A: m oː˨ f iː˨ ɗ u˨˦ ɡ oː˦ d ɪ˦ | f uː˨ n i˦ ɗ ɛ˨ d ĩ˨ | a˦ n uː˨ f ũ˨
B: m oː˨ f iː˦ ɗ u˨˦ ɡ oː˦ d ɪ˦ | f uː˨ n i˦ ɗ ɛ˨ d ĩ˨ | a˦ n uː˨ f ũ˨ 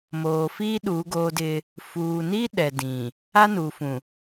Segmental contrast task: B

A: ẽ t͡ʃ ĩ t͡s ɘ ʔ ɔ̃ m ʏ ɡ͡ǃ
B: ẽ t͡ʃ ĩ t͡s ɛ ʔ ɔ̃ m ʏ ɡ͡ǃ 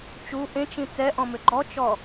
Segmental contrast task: B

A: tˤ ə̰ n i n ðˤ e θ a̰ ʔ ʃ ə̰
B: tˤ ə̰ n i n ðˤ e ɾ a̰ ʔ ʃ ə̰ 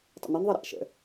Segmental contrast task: B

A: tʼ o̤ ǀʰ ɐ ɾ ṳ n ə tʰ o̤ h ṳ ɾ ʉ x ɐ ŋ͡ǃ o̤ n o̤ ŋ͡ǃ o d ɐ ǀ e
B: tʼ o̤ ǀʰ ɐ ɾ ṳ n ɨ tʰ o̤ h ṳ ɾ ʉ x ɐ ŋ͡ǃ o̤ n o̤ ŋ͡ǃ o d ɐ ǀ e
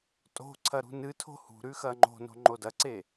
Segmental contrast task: B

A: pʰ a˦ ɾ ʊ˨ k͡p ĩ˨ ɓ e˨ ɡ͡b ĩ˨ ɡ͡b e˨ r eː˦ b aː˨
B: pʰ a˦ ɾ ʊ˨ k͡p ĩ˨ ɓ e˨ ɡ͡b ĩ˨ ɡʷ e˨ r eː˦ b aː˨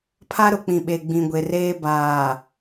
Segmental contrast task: B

